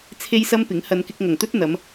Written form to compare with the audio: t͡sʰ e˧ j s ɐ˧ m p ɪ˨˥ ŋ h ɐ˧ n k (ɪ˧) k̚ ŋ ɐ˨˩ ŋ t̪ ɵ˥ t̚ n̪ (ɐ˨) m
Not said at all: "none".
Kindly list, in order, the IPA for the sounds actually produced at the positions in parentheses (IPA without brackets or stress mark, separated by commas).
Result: ɪ˧, ɐ˨˧